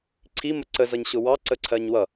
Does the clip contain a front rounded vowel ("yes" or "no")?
no